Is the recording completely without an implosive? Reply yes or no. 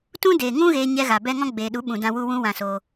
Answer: no